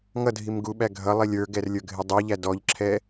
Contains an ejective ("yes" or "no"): no